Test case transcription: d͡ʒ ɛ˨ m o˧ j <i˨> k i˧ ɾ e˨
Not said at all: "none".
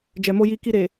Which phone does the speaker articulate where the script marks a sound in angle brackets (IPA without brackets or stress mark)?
i˧